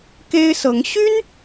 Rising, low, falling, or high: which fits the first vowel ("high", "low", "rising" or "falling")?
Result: high